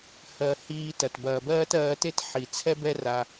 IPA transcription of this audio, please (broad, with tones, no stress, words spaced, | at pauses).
hɜ˨ hiː˧tɐ˨t bɐː˨bɜː˦tɜː˧te˦t ħi˨ t͡sʰɛ˦bɛ˦ ra˧